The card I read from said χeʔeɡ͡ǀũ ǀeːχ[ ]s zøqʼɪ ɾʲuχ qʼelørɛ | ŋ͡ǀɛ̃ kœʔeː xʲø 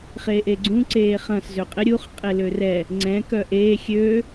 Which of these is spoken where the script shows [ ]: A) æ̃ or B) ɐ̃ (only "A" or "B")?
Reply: B